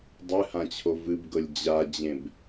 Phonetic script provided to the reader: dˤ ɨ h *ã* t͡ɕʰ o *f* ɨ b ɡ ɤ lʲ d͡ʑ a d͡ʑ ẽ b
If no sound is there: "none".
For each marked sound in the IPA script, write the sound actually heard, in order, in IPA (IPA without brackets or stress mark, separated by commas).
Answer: ã, v